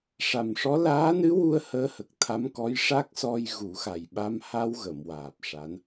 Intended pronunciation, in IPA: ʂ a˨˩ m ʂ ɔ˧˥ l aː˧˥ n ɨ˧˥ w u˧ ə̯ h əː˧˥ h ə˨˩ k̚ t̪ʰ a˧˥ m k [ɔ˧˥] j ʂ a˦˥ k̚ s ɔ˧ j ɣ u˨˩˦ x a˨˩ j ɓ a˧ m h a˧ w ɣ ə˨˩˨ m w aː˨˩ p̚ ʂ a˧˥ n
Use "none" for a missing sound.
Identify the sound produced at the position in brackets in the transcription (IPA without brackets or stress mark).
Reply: ɔ˧˥